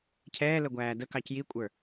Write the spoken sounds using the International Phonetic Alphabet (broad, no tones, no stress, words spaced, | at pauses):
cʰɛːlə ɡʷæːdəkɑc jikʷʼə˞